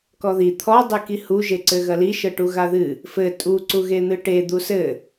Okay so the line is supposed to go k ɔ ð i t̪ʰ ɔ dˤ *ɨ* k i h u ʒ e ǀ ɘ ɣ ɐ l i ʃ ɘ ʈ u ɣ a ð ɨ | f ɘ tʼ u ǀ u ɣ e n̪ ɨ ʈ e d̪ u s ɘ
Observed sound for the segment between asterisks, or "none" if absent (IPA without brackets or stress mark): ɨ